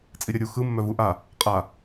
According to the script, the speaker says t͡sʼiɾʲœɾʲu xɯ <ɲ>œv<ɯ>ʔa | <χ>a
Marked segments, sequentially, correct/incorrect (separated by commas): incorrect, incorrect, incorrect